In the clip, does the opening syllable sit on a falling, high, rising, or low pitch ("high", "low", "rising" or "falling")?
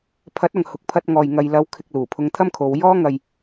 rising